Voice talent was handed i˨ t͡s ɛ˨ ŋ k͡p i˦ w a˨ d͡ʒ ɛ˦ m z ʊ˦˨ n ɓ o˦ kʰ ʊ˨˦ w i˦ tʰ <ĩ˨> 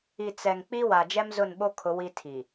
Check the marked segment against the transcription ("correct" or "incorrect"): incorrect